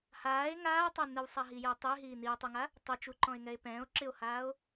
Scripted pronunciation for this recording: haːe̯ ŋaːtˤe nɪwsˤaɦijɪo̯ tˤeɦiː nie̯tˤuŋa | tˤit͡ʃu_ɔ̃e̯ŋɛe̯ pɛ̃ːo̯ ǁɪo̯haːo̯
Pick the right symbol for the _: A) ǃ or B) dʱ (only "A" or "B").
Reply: A